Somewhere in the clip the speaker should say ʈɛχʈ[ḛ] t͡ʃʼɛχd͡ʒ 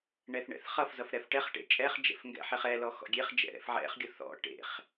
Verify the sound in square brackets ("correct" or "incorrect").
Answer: correct